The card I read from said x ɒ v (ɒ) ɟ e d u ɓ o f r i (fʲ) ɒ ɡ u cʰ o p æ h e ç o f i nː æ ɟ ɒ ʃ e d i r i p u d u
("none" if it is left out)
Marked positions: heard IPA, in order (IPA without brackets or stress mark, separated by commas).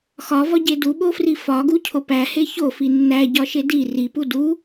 ɒ, f